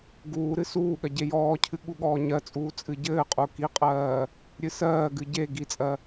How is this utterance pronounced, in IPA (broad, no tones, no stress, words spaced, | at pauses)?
ɡuːɾɨ suːɠɜ ɟejɔːcʰɨ ɠuɠɔːɲɜt͡sʼuː t͡sʼɨɟɘːqʼu kiqʼɜː | ɾʲɨsɜːɡɨ ɟe ɡit͡sʼɜ